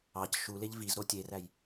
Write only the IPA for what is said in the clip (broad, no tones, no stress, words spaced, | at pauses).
ɑc ʃuleʎ vizɾo tʲeræj